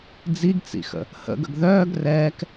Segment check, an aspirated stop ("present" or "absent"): absent